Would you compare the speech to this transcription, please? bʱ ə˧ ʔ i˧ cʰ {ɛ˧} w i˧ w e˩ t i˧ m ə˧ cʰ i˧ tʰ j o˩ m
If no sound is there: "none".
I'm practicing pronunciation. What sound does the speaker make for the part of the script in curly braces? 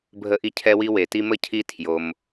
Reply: ɛ˧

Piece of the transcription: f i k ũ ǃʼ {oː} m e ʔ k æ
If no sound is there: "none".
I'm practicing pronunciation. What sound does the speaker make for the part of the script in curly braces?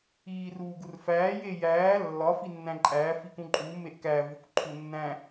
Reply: uː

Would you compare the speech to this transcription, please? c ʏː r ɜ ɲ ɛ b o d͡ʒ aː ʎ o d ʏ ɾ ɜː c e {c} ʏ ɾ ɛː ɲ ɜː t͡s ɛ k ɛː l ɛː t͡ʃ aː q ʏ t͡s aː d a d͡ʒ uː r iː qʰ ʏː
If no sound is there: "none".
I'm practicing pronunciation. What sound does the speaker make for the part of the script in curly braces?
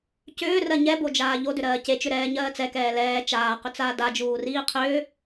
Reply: t͡ʃ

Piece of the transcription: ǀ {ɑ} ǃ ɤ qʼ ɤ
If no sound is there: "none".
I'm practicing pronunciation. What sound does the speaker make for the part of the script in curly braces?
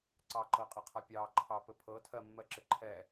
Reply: ɑ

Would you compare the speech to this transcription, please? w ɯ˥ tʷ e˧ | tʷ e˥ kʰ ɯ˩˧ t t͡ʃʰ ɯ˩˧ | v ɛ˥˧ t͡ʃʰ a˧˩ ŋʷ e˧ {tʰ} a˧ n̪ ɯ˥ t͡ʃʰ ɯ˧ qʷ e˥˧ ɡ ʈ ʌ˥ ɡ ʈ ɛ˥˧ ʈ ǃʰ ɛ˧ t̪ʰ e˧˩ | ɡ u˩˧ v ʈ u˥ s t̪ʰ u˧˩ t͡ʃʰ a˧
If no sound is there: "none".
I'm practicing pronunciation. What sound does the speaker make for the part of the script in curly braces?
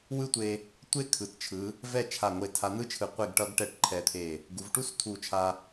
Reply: tʰ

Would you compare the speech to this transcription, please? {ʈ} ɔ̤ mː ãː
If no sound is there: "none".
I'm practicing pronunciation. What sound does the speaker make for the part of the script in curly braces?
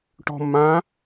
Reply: ʈ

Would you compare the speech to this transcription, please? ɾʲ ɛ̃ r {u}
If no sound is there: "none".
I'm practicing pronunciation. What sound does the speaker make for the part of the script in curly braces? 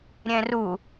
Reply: u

